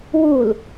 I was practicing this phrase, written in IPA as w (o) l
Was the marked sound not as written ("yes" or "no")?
yes